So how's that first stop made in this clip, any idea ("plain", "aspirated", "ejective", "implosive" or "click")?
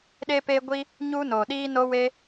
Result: implosive